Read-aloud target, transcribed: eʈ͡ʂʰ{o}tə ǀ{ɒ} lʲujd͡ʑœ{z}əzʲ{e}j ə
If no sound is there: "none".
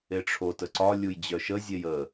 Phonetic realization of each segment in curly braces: o, ɒ, ʃ, e

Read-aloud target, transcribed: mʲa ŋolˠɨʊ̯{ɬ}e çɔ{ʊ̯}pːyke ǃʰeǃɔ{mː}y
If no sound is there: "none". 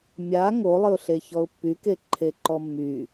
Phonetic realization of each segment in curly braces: ɬ, ʊ̯, mː

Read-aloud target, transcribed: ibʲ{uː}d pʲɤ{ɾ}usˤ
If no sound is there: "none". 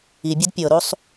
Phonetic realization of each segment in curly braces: u, ɾ

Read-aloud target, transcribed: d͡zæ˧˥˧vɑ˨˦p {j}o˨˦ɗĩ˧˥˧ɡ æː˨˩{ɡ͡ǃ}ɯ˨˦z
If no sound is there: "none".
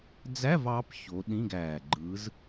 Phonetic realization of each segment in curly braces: ç, ɡ͡ǃ

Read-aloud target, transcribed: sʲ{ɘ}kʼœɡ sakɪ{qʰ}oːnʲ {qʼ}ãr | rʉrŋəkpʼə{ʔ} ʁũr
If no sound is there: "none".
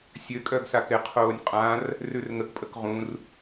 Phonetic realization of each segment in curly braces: ɘ, qʰ, qʼ, k

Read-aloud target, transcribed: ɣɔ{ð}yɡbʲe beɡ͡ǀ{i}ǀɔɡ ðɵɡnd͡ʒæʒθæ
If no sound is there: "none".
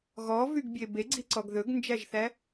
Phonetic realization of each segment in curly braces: v, i

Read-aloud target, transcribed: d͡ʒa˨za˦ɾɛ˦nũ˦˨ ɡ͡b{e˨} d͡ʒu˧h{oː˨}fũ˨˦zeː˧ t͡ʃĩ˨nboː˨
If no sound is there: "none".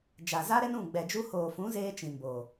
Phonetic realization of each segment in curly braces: ɛ˨, oː˨

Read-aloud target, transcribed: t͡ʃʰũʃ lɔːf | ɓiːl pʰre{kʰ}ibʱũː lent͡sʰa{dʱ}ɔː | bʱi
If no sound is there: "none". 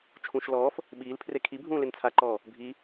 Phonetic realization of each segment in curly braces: kʰ, ǃ

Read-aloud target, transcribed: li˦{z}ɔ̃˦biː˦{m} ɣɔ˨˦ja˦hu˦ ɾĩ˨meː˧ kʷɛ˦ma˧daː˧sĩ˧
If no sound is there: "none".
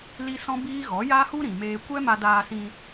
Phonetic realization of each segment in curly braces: s, none

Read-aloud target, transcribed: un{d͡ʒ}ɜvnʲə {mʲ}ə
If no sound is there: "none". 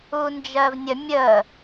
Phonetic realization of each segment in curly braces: d͡ʒ, mʲ

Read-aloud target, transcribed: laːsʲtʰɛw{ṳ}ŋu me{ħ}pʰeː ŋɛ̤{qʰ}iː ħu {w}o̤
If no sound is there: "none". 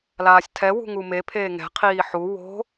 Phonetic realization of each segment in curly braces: ṳ, none, qʰ, w

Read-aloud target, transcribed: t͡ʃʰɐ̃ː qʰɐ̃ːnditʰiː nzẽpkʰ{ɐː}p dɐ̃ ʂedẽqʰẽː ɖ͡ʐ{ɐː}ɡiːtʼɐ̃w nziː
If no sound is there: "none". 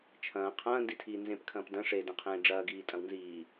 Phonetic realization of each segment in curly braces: ɐ̃ː, ɐː

